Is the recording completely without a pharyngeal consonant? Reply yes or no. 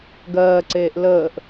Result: yes